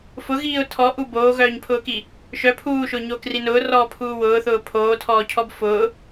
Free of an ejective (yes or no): yes